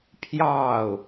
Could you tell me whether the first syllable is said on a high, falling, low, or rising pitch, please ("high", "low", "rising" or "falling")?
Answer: falling